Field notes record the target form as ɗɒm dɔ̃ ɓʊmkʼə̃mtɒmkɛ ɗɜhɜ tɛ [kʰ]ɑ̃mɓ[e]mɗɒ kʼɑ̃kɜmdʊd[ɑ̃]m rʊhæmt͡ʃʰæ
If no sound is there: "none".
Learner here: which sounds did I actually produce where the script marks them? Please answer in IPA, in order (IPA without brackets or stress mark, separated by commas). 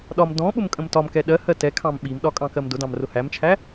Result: kʰ, i, ɑ̃